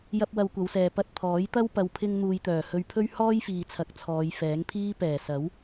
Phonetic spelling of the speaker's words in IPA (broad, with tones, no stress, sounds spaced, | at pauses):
j ɐ˧ p̚ w ɐ˧ w kʷ ɐ˨˧ w s ɛː˨ p ɐ˧ t̚ t̪ʰ ɔː˨˥ j t̪ ɐ˥ w p ɐ˨ w pʰ ɪ˧ ŋ n̪ uː˨ j t̪ œː˨˩ h ɵ˧ ɥ pʰ ɵ˥ ɥ h ɔː˥ j f iː˨ t͡sʰ ɐ˨˥ k̚ t͡sʰ ɔː˨˧ j f ɛː˨˥ ŋ pʰ iː˥ p ɛː˨˩ s ɐ˨˥ w